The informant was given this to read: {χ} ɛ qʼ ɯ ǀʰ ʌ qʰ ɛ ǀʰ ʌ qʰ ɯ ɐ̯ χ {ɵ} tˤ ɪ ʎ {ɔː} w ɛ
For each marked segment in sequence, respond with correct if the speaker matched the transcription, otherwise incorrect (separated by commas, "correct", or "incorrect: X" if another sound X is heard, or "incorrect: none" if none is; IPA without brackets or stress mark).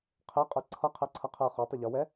incorrect: qʰ, incorrect: o, incorrect: ɔ